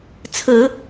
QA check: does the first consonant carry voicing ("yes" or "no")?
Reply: no